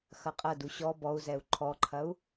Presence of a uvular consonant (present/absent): present